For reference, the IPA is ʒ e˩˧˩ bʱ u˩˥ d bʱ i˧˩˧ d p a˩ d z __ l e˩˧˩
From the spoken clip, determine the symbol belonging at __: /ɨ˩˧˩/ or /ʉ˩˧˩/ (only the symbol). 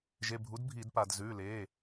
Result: ʉ˩˧˩